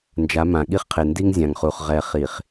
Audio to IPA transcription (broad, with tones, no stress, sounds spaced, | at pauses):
n d͡ʒ a˨˦ m ã˨ ɠ i˦ χ qʰ e˨ n d i˦ ŋ zʲ ã˨ ŋ χ u˨ χ ʁ ɛ˨ χ i˨ χ